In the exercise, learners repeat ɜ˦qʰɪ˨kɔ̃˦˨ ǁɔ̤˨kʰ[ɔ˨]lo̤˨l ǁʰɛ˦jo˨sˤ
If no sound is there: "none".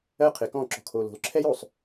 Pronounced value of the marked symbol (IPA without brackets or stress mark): o˨